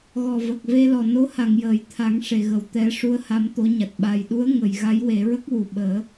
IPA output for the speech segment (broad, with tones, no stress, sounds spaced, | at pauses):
ɣ ɔ˨˩ v ə˨˩ k̚ v e˧ l ɔ˨˩ n o˧˥ h a˨˩˨ ŋ j əː˨˩˨ j t̪ʰ a˨˩˦ ŋ ʂ e˨˩˨ ɣ ə˨˩ w t̪ ɛ˨˩˦ ʂ u˧˥ ə̯ h a˧˥ m t̪ o˧˥ ɲ a˨˩ t̚ ɓ a˨˩ j ɗ u˧˥ ə̯ ŋ ə˨˩˨ j ɣ a˧˥ j w e˨˩˦ ɹ ə˦˥ k̚ w u˨˩ ɓ əː˨˩˦